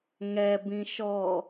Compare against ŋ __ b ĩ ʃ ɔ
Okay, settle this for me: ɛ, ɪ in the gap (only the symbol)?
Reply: ɛ